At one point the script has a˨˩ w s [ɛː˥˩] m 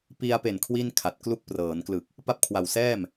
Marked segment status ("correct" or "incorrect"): correct